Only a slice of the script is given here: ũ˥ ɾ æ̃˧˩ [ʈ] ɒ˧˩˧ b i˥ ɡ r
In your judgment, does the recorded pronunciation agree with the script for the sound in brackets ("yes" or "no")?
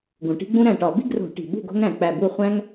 yes